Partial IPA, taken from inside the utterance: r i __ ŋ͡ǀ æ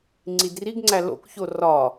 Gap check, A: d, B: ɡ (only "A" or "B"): B